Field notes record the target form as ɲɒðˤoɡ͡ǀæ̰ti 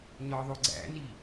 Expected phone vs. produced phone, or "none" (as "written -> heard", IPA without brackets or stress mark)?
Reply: t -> n